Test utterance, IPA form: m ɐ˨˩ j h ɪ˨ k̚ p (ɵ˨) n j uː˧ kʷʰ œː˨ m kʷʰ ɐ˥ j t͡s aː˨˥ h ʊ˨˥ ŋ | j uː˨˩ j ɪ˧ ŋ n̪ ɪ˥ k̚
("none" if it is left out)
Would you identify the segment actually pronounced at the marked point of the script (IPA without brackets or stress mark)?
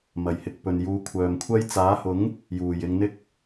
ɵ˨